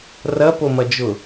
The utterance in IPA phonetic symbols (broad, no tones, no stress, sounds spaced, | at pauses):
r ɐ p o m ɐ d͡ʒ ʊ